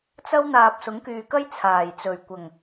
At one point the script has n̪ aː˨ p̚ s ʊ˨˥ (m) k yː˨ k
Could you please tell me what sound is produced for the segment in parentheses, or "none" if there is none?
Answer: ŋ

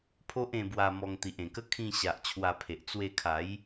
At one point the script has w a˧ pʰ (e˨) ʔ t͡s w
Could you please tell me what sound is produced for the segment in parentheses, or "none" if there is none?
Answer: e˨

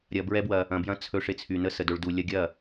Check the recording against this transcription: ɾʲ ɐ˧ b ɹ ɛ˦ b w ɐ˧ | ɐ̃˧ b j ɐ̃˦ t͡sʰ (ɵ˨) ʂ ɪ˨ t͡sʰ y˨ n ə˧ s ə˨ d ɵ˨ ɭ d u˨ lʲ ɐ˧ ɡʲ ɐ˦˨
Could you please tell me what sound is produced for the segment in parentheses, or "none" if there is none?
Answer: ɵ˧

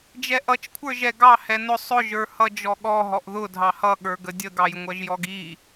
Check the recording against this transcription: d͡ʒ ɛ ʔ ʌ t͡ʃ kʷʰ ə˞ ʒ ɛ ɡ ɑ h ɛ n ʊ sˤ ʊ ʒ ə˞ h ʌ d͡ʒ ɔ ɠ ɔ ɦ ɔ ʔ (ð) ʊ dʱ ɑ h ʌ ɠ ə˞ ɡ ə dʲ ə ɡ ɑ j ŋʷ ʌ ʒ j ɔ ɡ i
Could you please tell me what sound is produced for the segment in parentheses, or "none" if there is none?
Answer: ð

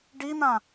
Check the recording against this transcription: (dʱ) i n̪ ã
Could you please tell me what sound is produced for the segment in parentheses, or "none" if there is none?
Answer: ɖ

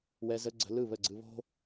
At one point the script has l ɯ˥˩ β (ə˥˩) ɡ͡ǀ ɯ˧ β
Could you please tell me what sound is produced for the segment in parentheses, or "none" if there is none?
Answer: ə˥˩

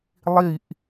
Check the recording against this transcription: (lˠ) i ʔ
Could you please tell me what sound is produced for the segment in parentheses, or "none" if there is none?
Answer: lˠ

